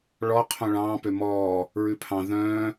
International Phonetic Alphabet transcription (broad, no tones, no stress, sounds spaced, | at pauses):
ɭ ɔ qʰ õ ɭ ɑ̃ː p ø m ɔː | ɹ ʉ pʰ ɑ̃ ð œ̃ː